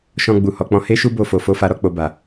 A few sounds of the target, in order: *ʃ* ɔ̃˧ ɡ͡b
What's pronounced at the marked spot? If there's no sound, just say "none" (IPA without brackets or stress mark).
ʃ